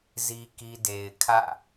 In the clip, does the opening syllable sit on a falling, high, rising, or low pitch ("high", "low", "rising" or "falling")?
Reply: high